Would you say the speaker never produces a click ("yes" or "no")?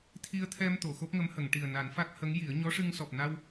yes